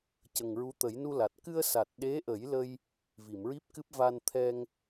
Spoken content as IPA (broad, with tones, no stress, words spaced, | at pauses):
cə˨˩ŋɹu˧˥t̪ə˨˩˦j nu˧la˨˩t̚ kɨ˧ə̯ sa˨˩t̚ɗe˧˥ʔə˨˩˦jlə˧j | vi˨˩˨mɹi˦˥p̚kɨ˦˥p̚ va˧nt̪ʰɛ˧ŋ